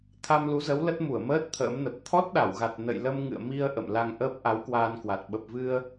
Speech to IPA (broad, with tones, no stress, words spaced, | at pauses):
t̪ʰa˧mlu˨˦zə˨˦wlə˦˥t̚ mu˧˩ə̯məː˦˥t̚ t̪ʰə̰ː˧˥mnə˨˩p̚ t̪ʰɔ˦˥t̚ɗa˧˩wɣa˨˩t̚ nə̰˧˨jlə˧mŋɨ̰˧˨ə̯ mi˧ə̯ ʔə̰˧˨mla˧ŋʔəː˦˥p̚ ʔa˨˦wkwaː˧nkwa˨˩t̚ ɓə˨˩p̚vɨ˧ə̯